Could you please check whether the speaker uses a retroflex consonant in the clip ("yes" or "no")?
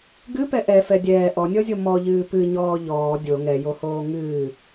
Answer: no